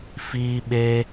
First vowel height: high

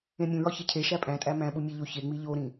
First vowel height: mid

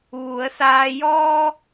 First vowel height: high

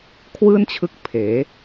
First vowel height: high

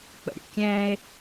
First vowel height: mid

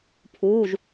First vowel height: high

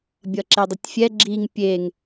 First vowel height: mid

